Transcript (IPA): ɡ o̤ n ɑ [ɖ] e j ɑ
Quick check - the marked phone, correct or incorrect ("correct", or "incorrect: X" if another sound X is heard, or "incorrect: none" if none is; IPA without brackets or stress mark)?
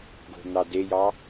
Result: incorrect: d